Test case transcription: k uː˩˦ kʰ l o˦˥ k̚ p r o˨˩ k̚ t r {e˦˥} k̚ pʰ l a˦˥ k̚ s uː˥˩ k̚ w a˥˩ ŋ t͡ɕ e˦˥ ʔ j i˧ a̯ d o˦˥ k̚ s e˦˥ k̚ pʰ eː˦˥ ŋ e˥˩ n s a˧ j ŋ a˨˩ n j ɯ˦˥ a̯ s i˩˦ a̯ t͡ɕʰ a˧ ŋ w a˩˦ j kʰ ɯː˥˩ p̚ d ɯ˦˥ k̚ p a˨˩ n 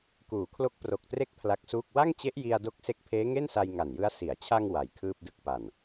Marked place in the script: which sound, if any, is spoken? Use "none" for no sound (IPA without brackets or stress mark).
e˦˥